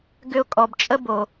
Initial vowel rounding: rounded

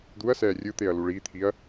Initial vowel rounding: rounded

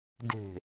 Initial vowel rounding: unrounded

